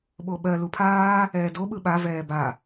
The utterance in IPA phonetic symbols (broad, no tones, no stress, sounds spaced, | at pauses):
ɓ o ɓ ɜ l u pʰ aː | ɛː d o ɓ ɯ ɓ a v ɛː b a